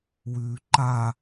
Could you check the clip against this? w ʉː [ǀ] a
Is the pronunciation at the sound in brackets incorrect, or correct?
incorrect